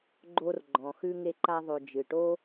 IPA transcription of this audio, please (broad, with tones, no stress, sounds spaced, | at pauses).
ɡ͡ǃ o˦ r ɡ͡ǃ ɔ̃˩ x ʉ˥ ŋ e˦ ǃ a˦ ðˤ o˨ d͡ʒ ɨ˩ ʈ o˥